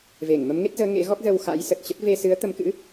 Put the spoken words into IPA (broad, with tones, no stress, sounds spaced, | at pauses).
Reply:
v e˧˩ ŋ m ə˨˦ m ŋ e˦˥ t̚ z əː˨˦ ŋ ḛ˧˥ ɣ ɔ˦˥ k̚ z ə˧ w x a̰˧˥ j s ə˨˩ t̚ t͡ɕ ə˦˥ t̚ v e˧ s ɨ˨˦ ə̯ t̪ ə˨˦ m k ɨ̰˧˥